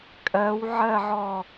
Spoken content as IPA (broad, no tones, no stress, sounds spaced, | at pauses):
kʼ ɜ w ʕ ɜ ʕ ɔ